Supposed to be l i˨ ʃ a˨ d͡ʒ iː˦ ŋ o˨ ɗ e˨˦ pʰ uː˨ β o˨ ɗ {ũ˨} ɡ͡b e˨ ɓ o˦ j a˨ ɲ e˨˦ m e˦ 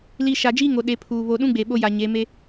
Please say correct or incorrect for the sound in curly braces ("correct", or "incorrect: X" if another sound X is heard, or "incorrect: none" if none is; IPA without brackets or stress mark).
incorrect: ũ˦